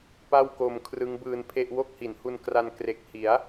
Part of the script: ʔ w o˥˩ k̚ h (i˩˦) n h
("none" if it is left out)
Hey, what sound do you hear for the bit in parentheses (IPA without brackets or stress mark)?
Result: i˩˦